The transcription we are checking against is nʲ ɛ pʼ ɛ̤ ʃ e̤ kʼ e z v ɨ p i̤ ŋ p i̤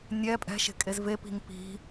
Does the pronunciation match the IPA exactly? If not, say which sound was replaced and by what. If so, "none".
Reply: ɨ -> e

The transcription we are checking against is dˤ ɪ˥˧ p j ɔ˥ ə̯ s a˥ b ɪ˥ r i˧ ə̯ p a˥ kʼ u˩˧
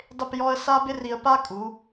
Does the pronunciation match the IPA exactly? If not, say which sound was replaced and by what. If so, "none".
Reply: none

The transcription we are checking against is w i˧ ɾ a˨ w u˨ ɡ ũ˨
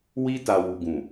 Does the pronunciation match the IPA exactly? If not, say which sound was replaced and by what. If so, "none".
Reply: ɾ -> t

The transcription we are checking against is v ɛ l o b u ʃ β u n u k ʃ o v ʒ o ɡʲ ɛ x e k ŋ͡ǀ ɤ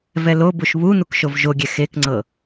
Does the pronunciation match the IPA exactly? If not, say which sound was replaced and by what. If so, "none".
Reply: none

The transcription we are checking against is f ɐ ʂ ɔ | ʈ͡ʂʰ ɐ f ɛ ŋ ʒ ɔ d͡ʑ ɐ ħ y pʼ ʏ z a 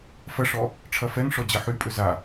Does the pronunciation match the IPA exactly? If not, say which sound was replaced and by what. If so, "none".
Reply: ʒ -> ʂ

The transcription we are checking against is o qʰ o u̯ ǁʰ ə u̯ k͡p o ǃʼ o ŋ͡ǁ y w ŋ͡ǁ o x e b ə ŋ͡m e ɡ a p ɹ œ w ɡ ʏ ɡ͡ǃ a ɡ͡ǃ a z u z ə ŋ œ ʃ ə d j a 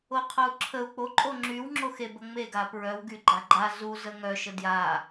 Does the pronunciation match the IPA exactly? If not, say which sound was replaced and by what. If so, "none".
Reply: ʏ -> y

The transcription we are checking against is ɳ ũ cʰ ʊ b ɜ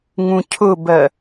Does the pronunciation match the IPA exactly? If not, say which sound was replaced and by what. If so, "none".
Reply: ɳ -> ŋ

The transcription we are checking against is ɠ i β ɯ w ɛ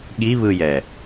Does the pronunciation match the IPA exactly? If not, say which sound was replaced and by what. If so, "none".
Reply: w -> j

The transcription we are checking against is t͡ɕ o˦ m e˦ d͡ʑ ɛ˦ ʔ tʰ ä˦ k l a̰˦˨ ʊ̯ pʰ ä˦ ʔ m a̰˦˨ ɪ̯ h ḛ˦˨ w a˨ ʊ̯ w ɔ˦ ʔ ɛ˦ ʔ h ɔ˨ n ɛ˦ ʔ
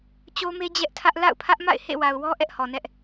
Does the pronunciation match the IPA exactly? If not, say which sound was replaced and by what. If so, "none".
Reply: k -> ʔ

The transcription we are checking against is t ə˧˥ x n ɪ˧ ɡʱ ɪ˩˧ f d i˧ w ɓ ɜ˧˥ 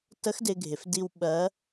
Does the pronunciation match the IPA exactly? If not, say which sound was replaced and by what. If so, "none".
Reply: n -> d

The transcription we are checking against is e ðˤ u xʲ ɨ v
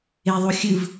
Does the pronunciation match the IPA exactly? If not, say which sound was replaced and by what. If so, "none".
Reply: none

